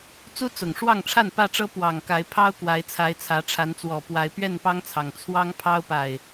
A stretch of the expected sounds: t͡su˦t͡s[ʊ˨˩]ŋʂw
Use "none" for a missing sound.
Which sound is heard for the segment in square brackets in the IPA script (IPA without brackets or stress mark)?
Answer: ʊ˨˩